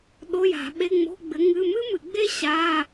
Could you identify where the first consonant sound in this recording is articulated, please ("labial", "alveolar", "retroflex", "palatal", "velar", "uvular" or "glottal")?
alveolar